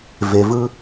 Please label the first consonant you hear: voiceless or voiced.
voiced